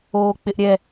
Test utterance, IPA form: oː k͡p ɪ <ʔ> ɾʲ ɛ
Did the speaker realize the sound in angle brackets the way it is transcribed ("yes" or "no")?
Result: yes